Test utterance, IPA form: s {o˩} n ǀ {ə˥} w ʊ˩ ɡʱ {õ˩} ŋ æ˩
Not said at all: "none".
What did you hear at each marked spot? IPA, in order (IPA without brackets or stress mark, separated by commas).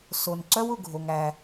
o˩, œ˥, o˩